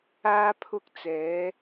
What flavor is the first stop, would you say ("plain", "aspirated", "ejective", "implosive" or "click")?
aspirated